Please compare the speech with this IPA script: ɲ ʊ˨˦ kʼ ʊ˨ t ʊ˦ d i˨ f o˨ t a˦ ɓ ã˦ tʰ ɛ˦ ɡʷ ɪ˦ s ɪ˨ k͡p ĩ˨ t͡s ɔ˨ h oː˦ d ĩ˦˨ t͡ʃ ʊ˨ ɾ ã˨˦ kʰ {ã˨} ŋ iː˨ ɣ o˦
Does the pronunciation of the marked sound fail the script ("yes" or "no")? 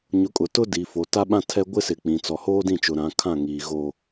yes